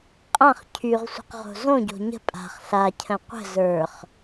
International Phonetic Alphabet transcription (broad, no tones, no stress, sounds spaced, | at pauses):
qʼ ã χ cʰ y ʁ sʷ ə̤ q ʁ o̤ z õ ɟ o̤ ɲ ə̤ pʼ a̤ χ ɬ a cʰ ə̃ qʷ ə̤ z ə˞ χ